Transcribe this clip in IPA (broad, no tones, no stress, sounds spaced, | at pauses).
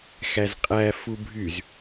x æ z qʼ æ f u bʱ y z